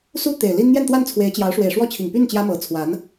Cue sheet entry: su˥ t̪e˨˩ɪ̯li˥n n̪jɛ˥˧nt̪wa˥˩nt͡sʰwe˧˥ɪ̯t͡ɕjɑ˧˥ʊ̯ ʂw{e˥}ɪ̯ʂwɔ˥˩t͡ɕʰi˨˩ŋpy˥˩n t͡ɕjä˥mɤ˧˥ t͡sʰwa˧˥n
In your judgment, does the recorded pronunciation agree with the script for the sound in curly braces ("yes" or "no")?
no